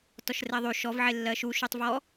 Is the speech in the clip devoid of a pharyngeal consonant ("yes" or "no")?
no